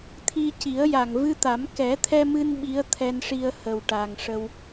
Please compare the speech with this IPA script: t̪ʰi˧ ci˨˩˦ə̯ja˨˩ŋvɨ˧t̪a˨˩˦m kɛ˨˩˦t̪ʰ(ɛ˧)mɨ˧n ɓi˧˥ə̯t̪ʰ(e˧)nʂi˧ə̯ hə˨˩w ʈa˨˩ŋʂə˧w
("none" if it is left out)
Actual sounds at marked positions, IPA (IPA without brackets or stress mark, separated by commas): ɛ˧, ɛ˧